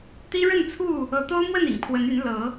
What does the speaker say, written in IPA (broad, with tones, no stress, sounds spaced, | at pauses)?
t̪ i˦ ɻ ə˥˨ n t͡sʰ u˥˨ | ɤ˨˦ t̪ o˦ ʊ̯ m w ə˥˨ n ḭ˨˩ ŋ pʰ w ə˨˦ n y˨˦ n l ɤ˨˦